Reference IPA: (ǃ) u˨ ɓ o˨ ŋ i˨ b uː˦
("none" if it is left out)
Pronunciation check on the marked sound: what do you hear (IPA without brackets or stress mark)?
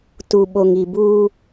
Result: t